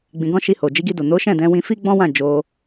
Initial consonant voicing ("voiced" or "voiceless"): voiced